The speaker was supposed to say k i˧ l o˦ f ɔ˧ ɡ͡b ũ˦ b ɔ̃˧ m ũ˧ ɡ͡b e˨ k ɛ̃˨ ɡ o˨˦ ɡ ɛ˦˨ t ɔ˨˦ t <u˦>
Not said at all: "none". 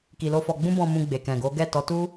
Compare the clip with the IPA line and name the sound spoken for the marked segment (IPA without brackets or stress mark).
u˦